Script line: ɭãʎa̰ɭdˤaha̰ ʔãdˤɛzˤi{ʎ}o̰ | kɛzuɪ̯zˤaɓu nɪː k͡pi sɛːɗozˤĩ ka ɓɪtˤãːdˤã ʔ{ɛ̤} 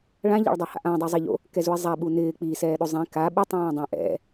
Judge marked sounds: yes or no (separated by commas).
yes, no